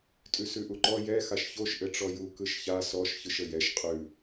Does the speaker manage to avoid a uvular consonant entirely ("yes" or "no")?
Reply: no